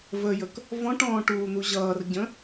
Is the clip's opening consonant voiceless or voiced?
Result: voiced